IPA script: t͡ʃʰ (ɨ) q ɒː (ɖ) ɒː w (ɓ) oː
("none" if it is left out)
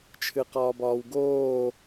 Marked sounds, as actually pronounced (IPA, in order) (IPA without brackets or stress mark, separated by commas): ɨ, b, ɡ